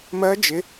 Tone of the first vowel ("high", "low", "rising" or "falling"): rising